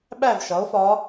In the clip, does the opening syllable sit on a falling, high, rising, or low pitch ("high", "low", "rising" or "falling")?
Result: falling